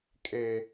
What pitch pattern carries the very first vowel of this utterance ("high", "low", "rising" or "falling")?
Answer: high